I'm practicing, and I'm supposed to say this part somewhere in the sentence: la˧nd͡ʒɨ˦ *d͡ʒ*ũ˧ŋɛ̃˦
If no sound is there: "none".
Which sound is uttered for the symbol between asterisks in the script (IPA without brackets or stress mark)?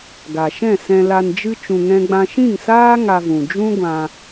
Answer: t͡ʃ